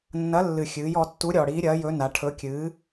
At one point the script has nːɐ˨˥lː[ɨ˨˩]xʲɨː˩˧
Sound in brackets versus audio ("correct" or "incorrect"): correct